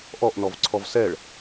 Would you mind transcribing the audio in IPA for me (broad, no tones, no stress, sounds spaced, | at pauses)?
ʔ ɔ ʔ n ɔ v ǀʰ ɔ v s ɛ ɭ